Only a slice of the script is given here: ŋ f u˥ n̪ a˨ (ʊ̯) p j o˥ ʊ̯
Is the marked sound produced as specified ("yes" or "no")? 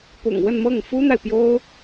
no